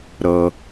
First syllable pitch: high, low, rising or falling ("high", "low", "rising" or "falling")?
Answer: low